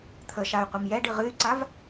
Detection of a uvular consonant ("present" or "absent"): present